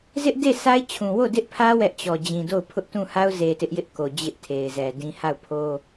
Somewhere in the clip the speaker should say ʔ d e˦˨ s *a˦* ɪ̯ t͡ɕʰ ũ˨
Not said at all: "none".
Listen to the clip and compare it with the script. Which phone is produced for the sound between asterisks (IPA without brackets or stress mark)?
a˦